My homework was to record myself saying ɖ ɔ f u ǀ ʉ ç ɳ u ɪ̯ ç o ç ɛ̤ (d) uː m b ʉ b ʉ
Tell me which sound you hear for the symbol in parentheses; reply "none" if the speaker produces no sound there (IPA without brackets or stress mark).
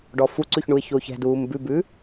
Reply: d